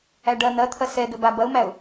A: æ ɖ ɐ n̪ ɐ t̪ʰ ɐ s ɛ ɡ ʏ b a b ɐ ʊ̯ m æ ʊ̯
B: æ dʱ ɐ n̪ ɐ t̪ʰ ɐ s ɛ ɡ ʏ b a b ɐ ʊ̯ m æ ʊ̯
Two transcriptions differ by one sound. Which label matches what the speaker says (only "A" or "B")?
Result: A